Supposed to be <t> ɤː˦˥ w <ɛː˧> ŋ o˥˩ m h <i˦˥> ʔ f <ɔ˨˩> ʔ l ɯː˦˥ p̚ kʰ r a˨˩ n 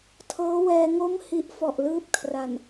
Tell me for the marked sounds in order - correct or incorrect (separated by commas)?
incorrect, correct, correct, correct